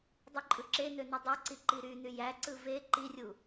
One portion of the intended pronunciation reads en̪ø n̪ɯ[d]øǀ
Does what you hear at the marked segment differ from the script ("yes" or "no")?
yes